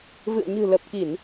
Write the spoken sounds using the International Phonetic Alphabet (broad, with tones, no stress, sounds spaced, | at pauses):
v ɨ̰˧˨ ə̯ ɲ ɨ̤˨˩ l ə˨˩ p̚ k i˧˩˨ n